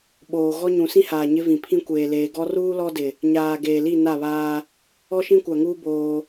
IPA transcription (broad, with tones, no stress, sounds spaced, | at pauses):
ɓ oː˨ ɣ ɔ˦ ɲ ũ˨ s ĩ˦ h aː˨ ɲ ɪ˦ v ĩ˨ pʰ ĩ˦ kʷ eː˨ l eː˨ ɡ ɔ˦ r uː˦ l ɔ˦ d ɪ˨ | ɲ aː˨ ɡ eː˨ l i˦˨ n a˦˨ β aː˦ | ɔ˦ ʃ ĩ˦ kʷ a˨ ŋ uː˦ b oː˦